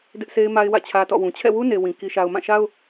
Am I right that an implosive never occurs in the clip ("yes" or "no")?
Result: yes